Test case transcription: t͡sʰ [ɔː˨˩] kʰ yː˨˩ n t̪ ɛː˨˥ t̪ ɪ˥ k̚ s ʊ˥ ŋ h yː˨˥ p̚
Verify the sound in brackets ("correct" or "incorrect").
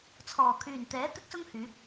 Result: correct